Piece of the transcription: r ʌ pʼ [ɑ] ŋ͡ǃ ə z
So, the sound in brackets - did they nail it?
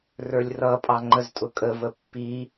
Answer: yes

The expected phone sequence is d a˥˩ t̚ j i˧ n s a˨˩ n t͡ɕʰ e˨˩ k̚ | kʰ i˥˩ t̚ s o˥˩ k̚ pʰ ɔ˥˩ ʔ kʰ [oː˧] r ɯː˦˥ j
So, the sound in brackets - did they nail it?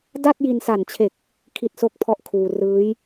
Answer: no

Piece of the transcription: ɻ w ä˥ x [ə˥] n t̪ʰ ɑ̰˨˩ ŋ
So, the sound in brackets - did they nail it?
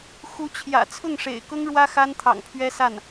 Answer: no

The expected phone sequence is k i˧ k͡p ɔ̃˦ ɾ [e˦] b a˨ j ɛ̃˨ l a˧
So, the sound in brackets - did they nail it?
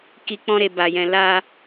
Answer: no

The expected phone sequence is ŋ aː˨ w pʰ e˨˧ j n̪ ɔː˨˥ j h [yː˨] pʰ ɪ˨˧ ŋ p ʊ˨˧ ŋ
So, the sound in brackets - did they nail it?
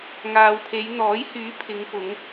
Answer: no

